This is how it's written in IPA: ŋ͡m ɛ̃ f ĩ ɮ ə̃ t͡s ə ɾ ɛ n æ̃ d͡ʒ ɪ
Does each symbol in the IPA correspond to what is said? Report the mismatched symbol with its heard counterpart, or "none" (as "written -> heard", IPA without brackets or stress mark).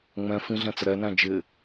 ə̃ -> ɛ̃